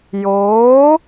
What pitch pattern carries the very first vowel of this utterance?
rising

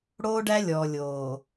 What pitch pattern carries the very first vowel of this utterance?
high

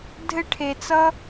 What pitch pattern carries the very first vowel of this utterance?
high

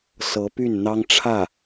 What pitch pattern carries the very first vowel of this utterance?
rising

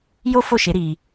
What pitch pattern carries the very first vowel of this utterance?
high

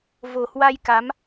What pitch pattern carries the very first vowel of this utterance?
low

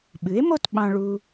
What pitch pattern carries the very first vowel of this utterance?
rising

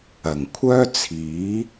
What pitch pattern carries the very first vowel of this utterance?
low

